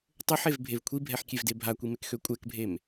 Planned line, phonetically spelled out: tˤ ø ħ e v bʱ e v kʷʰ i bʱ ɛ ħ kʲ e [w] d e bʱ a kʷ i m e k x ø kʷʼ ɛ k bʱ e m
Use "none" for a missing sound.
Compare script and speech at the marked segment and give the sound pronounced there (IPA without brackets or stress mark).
v